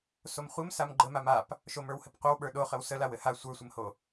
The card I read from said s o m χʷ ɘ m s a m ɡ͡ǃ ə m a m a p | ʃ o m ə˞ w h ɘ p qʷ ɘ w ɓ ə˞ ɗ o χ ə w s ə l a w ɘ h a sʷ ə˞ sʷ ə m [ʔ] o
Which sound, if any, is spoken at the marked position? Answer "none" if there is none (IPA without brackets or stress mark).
h